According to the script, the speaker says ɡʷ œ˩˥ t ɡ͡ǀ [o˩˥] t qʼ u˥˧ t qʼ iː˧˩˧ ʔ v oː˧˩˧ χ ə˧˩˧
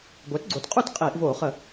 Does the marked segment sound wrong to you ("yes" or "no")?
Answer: no